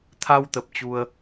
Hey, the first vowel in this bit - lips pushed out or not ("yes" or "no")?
no